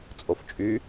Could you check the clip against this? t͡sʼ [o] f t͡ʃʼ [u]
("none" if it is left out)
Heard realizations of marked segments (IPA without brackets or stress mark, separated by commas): o, y